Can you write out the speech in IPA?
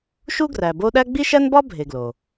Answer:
ʃ u˥ ɡ r æ˨ b o˦ ɗ æ˥ ɡ͡b i˥ ʃ æ˥ n b ɒ˥ bʱ e˨ ɡ l o˩

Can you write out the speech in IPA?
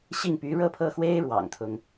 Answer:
ɕ i˥˩ ŋ p y˧˥ ɻ ɤ˥˧ pʰ ɤ˥˩ x w e˥ ɪ̯ ɻ w ɑ̰˨˩ ŋ t̪ʰ ʊ˦ ŋ

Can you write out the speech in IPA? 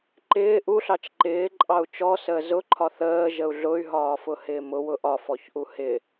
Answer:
ǃ ɪː ʔ u ɬ ɑ t͡ʃ ǃ ɪː ǃʼ ɑ u̯ t͡ʃ ɔ s əː z ʊ ǃʰ ɒ θ əː ʒ ə u̯ ɮ ʊ y̯ ɦ ɒː f ʊ h ɪː m ʊ w ʊ ʔ ɒ f ɔ ç ʔ u h ɪ

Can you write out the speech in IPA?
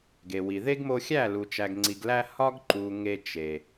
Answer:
ɡ e˨ w i˨ ð e˦ ɡ m o˧ xʲ æ˦˨ l u˨ t͡ʃ æ˨ ɡ ŋ͡ǀ i˨ ɡ l æ˧ h ɒ˦ ɡ ǃ u˨ ŋ e˧ t͡ʃ e˨

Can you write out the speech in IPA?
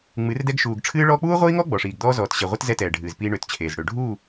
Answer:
ŋ͡m ɨ˨˦ r d ɛ˦ ɡ ʃ uː˨ ɡ ʈ͡ʂʰ ɨː˦ ɭ ɔː˦ k͡p uː˦ ʁʷ iː˦ ŋ ɔ˦ ɡ͡b ɔ˨ ʂ iː˨ ɡ d̪ ɔː˦ z ɔː˨ t ɕ ɛ˨ ʁʷ ɨ˦ t z ɛ˦ t ɛː˨ ɖʱ ɨː˨ z p iː˦ ɳ ø˨ t t͡ɕʰ eː˨ z ɽ ø˨ ɖʱ uː˦˨

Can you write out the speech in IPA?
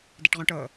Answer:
d ɛ ʈ ʁ õ ʈ ɤ

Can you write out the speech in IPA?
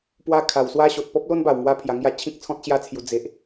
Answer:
p w a˦ kʰ a˨˩ w s w a˦ ɕ o˨ t̚ p ɔ˦ p̚ l o˦ n b a˨˩ w ŋ w a˦ pʰ j a˧ ŋ j a˥˧ t͡ɕʰ ĩ˦ k̚ t͡sʰ ɔ̃˦ t̚ ɕ j a˦ t͡sʰ j u˧ d͡z e˦ ʔ

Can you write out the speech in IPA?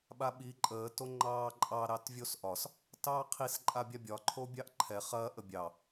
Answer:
ɓ a ɓ i ǃʼ əː t o ŋ͡ǃ ɑː ǃʼ ɑ ɾ ɑ t vʲ o s ʔ ɒ s | t ɑː qʰ i s ǃʼ a bʲ a bʲ ɒ ǃʰ o bʲ ɑ ʔ ǃʰ ɛ χ ɐ ʔ ə bʲ ɑ

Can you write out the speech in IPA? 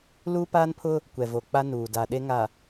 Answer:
l uː˦ p aː˦ n pʰ ʊ˦ | kʷ ɛ˨ v o˨ k͡p a˦ n uː˨ d a˨ ɗ e˦ ŋ a˨

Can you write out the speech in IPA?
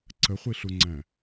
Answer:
ǀ ə χʷ i ɬ u ŋ͡ǀ æ̃

